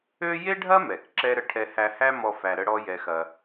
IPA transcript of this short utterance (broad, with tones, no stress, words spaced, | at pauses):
ø˥ je˥ɖʱɐ˥mɛ˩k ǁɛ˥ɾə˧ ʈʰɛ˧hæ˧hæ˥mɔ˧ fæ˧ɾə˥ɽɔ˥ jɛ˧xɐ˧